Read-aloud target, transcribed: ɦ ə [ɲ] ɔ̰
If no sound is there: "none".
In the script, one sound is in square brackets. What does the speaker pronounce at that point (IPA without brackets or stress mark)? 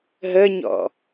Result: ɲ